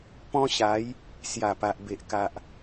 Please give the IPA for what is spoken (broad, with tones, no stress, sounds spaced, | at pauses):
p ɔ̃˦ ɕ a˨˦ j | s j a˨˩ p a˨ ʔ b e˨ ʔ k a˨ ʔ